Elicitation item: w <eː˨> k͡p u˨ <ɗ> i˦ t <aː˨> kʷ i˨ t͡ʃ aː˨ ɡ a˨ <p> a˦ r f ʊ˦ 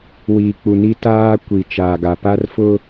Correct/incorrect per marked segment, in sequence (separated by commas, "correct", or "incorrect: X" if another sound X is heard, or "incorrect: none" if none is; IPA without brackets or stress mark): incorrect: iː˨, incorrect: n, incorrect: aː˦, correct